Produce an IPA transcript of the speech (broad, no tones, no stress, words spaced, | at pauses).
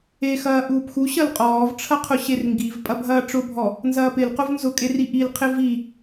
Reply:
exɐː ʔuːpxu ɕɐlqʼɔːvʈ͡ʂʰɐqʰʊ ɕerŋɡiv pʼɐbʱɐːʈ͡ʂʊbʱɔ | nzɐːpɪlqʊv nzʊkʼeri ʔilqʰɪ vi